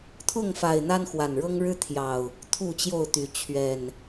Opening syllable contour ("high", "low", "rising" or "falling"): falling